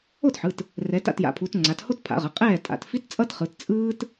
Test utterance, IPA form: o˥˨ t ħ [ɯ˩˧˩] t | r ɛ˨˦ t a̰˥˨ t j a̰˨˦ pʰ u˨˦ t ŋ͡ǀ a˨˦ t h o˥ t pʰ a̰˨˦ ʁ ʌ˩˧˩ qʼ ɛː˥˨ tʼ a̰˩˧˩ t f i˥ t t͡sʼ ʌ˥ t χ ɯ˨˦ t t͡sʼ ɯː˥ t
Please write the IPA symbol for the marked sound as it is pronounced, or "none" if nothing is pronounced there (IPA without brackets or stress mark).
ɯ˩˧˩